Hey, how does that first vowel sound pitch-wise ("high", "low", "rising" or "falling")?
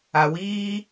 low